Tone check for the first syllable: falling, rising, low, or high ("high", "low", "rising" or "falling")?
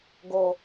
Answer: low